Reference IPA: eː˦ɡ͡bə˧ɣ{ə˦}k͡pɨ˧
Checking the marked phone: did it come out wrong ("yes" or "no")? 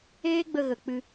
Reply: yes